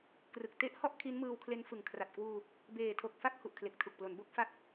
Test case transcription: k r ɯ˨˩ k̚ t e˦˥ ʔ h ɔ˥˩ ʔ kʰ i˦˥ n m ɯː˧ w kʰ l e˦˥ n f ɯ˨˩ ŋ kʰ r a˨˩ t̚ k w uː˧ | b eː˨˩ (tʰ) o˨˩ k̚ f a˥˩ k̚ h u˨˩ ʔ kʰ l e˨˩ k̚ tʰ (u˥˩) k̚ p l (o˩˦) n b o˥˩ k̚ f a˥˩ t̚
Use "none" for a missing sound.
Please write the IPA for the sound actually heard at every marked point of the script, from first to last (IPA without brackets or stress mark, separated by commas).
tʰ, u˨˩, o˩˦